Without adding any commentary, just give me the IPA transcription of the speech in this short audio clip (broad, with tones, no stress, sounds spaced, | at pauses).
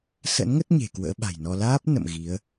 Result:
s ə̰˧˥ n ŋ ə˦˥ t̚ ɲ e̤˨˩ k w ə̰ː˧˥ ɓ a̤˨˩ j n ɔ˧ l aː˦˥ p̚ n ə̰˧˨ m ɣ i˨˦ ə̯